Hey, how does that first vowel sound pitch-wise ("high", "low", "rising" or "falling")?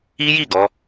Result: high